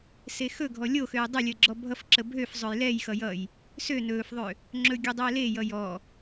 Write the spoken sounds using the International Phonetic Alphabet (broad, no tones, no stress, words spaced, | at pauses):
sexɵɡʱɔ lʲoxøj dˤəlʲəː ɡ͡ǁɔbʱʌfǁə bʱøf zˤɵjlɛjxʌ jʌj | sø nɵːfðˤø | ŋ͡ǁɵɡʲɵ dˤeːlejʌ jɔ